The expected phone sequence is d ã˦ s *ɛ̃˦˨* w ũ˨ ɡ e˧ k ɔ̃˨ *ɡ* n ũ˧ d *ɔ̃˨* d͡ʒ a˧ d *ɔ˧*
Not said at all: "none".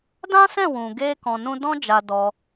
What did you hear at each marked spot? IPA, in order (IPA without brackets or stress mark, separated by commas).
ɛ̃˦˨, none, ɔ̃˦, ɔ˧